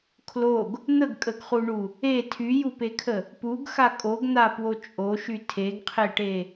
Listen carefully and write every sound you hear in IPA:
kʰ l o ɡ | n̪ ə ɡ kʼ ə ɡ χ u ɳ u | e tʰ y j u p e kʰ ə | p u ɡ x a kʼ o ɡ n̪ a p w o t͡ʃʼ o ʃ y tʰ e ɡ qʰ e ʈ e

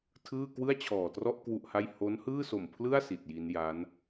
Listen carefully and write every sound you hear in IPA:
tʰ ɯː˥˩ k w ɯ˥˩ a̯ t͡ɕʰ ɔː˨˩ t r ɔ˥˩ ʔ k w u˥˩ ʔ h a˥˩ j h o˦˥ n h ɯː˥˩ s o˨˩ m pʰ l ɯ˥˩ a̯ s i˨˩ t̚ j i˦˥ n j a˦˥ n

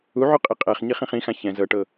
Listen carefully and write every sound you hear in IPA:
u ʕ u qʼ i qʼ ɛ χ ɲ i χ ĩ χ ĩ x ã ç ɛ̃ z ɤ ʈ ɤ

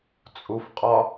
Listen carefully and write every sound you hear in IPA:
t͡sʼ u f qʼ ɒ

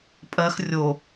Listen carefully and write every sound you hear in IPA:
pʼ ɜ x rʲ o

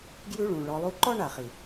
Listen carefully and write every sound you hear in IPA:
ɡ j ʉ˥ ɭ ũ˨ ɭ ɔ˦ lˠ u˦ ǃ ɔ˥ ɳ a˩ χ i˩

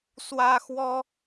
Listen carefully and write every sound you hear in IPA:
s w ä˥ x w ɔ˥

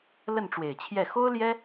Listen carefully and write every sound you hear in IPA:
l ə˥˩ n ʈ͡ʂ w e˨˩ ɪ̯ t͡ɕʰ j ɛ˥˩ x o˥ ʊ̯ l j ɛ˥

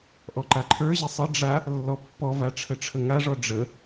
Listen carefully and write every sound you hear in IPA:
ʔ ɔ ǃ a ǃʰ ə˞ ʑ ɪ sˤ ə ɖ͡ʐ a | lː ɔ pː ɔ v a ʈ͡ʂʰ ə ʈ͡ʂʰ ə ŋ a ʐ ɔ ɖ͡ʐ ə

